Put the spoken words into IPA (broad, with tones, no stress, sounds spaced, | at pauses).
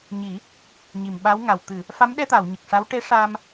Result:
ɲ i˨˩˦ | ɲ i˨˩˨ m ɓ a˧˥ w ŋ a˨˩ w t̪ ɨ˨˩˨ | f a˧˥ m ɗ ɛ˧ t̪ a˨˩˨ w ɲ ə˨˩ k̚ ʂ a˧˥ w ʈ e˧˥ ʂ a˧ m